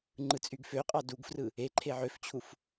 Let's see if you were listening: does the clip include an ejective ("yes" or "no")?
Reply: yes